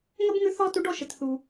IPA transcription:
ŋ ə˥ b ŋ ʉ˧˥ θ ɔ˥ t u˧˥ ɖ ɔ˧˥ ʃ ə˩ t θ u˩

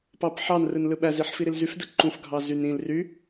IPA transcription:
p ɑ p ħ ɑ n r ɯ n l ɯ ɓ æ z i ħ f i ɾ i l z y f d ɯ ǃ ũ f ɡʱ ɑ z y n ĩ l r y

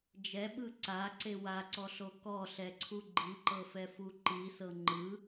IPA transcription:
d͡ʒ ɛ ɓ ɯ ǀ a ǀ e w a ǀ ɔ ɬ o k ɔ ɬ ɛ ǀʰ u ɡ͡ǃ i ǃ ɤ f ɛ f u ǃ i s ɤ ŋ͡ǃ ɯ

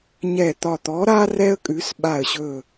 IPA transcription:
ɲ ɛ˧˩ t̪ ɒ˧˩ t̪ ɔ˨˥ ɾ a˥ r ɛ˥ ə̯ kʼ ʉ˨˥ s ɓ a˧˩ ə̯ ɕ ɵ˧˩

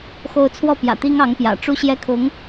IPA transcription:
x o˥˧ ʊ̯ t͡sʰ w ɔ˥˩ p j ä̰˨˩ t̪ i˥ ŋ ɑ˧˥ ŋ p j ä̰˨˩ ʈ͡ʂ u˥˧ ɕ j ɛ˥˩ kʰ ʊ˧˥ ŋ

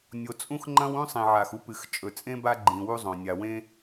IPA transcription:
nʲ o˩ t͡sʼ ũ˥ x ŋ͡ǃ ɐ̃˥ w ũ˥ sˤ ĩ˩ ʕ a˩ x u˥ p ɨ˩ x t͡ʃʼ ɵ˩ t͡sʼ ẽ˥ b a˥ ɡ͡ǃ ĩ˩ w u˥ zˤ õ˩ nʲ a˩ w ẽ˥

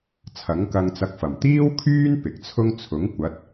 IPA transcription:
t͡sʰ ɐ˨˥ ŋ k ɐ˧ ŋ t͡s ɐ˧ k̚ f ɐ˨˩ m t̪ iː˥ w kʰ yː˥ n p ɪ˨ k̚ t͡sʰ ʊ˥ ŋ t͡sʰ ʊ˨˥ ŋ kʷ ɐ˨˥ t̚

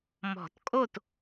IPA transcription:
m ɔ̤˨˩˦ t kʼ o˥˨ t

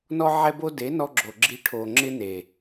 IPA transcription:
n ɔ˦ ʕ ɛ˧ b o˧ d e˨˦ n ɔ˧ ɡ͡ǁ o˨ ɡ͡ǁ i˨ ʈʰ o˨ ŋ͡ǁ ɪ˧ n e˨

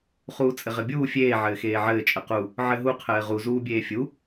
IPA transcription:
χ uː t͡sʼ ɘ ʁ ɘ bʲ uː fʲ eː ʕ ɘː x eː ʕ ɘː t͡ʃʼ ə q u | ʕ ɘ ɦ u qʰ ɘː ʁ u z uː bʲ eː fʲ u

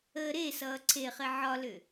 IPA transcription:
əː ɾ e s ʌː ǀʰ e χ e ʕ ɒ l ʏ

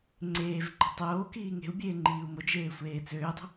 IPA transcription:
ŋ͡ǀ eː v ǃ e̤ tˤ oː k iː ŋ e̤ u̯ bʲ eː ŋ͡ǃ iː u̯ m o d͡ʒ eː sʷ eː t͡s øː dˤ ə̤

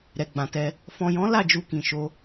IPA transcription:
ɾ ɛ˨ ɡ͡b ã˨ t ɛ˧ | f ɔ̃˨ j ɔ̃˨˦ l a˦˨ d͡ʒ u˧ k ĩ˨ ʃ o˧

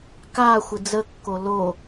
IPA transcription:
k a xʷ ɪ d͡z ə kː o l o

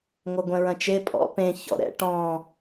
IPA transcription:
ŋʷ ɐ ɡʷ ɛ̃ ɹ ɐ̃ t͡ʃ e pʼ ɔ̰ p ẽ ç ɔ̰ ɾ ɛ̰ ʈ ɔ̃

